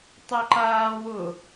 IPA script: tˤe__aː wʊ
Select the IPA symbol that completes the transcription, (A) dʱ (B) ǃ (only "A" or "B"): B